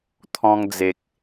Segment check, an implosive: absent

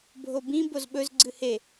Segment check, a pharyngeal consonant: absent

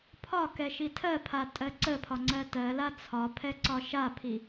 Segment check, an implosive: absent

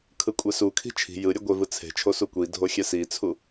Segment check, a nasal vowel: absent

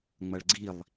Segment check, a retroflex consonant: present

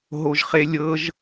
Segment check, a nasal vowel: absent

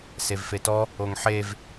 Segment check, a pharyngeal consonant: present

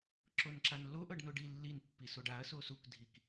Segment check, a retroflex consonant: present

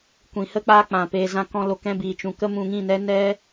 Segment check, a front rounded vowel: absent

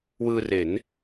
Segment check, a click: absent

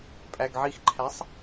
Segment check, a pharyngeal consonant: present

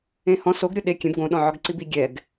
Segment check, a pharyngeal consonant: present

